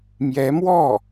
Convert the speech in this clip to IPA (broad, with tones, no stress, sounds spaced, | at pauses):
m j ɛ˧˥ m w ɔ˥˩